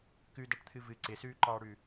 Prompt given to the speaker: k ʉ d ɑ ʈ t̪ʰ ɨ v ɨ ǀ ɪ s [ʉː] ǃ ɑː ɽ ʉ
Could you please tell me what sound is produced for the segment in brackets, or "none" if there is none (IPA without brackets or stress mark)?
ʉː